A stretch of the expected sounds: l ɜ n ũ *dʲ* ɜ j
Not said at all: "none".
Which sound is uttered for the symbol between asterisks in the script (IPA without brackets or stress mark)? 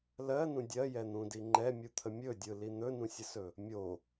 dʲ